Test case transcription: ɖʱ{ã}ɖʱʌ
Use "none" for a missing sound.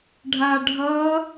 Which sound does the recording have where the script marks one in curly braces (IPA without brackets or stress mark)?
a